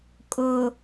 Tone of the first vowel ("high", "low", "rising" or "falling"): low